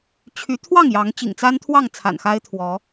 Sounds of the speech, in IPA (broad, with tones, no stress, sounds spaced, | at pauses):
t͡ɕʰ y˨˦ t̪ʰ w ɑ˥˨ ŋ j ɑ˨˦ ŋ t͡ɕ ḭ˨˩ ŋ t͡s a˦ n t̪ʰ w ɑ˥˨ ŋ t͡sʰ a̰˨˩ n x a˦ ɪ̯ t̪ʰ w ɔ˨˦